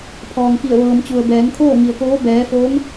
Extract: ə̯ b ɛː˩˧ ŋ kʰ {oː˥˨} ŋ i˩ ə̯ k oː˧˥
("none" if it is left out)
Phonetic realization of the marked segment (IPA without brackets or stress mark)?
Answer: oː˥˨